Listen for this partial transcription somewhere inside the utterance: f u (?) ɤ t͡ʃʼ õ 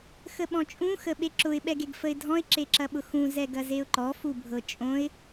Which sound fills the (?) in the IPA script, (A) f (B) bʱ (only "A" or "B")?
B